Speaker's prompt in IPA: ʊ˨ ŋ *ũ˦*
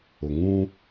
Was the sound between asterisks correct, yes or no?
yes